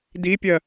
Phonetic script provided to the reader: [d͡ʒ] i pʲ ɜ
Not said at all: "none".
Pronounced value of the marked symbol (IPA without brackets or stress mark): d